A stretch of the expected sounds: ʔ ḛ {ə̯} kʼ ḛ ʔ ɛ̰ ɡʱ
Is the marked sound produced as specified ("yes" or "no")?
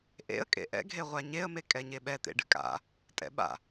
yes